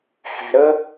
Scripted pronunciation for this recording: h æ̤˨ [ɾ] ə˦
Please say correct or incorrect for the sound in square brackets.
correct